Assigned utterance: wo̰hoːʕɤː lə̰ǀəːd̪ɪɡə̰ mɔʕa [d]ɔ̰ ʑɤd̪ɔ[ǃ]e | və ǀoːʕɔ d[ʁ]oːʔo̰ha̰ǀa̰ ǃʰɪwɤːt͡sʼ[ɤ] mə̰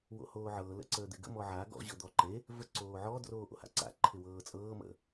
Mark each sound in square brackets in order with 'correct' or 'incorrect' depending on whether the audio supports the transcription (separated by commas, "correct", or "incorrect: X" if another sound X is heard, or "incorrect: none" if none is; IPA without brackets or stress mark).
incorrect: ɡ, correct, incorrect: r, incorrect: ɤː